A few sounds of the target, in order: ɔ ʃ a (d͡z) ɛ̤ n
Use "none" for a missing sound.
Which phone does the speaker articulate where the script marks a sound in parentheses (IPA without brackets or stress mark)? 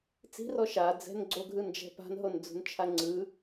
d͡z